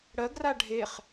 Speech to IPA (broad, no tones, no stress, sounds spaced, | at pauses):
ɽ ɜ ɡ r a ɖʱ e χ